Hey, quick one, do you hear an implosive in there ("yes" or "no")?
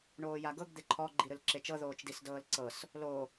no